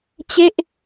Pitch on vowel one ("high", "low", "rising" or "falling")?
falling